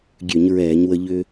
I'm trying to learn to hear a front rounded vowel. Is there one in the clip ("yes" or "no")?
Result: yes